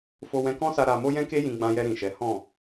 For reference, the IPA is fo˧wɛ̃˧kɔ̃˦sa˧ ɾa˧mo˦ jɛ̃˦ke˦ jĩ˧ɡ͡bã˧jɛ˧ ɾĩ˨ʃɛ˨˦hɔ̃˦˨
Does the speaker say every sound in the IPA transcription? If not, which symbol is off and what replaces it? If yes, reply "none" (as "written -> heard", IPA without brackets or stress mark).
none